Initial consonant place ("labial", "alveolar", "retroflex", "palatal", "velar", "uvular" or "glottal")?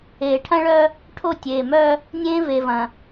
retroflex